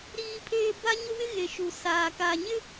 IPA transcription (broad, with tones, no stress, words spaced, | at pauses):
ɾiː˦pʰeː˦ ba˦ɲʊ˦wɪ˦ ɣe˨ ʃu˨saː˨ kaː˨ɲɪ˦